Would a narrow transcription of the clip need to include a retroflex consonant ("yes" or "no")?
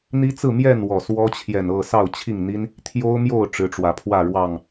yes